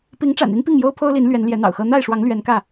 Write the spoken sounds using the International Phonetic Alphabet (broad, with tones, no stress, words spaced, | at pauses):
pi˨˦ŋʈ͡ʂa̰˨˩ni˦n pi˥˨ŋjo˦ʊ̯pʰo˦ʊ̯li˨˦n lɥɛ˨˦nljɛ˨˦n̪ɑ̰˨˩ʊ̯xɤ˦ n̪a˥˨ɪ̯ʂwɑ˨˦ŋ lɥɛ˨˦nkä˥˨